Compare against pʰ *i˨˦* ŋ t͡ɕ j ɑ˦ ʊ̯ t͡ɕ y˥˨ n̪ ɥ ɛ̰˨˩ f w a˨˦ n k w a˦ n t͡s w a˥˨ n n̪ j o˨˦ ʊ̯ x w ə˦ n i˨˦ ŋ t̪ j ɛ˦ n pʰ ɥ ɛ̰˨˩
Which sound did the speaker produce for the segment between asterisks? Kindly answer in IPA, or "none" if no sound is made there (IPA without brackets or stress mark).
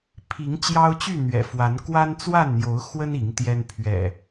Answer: i˨˦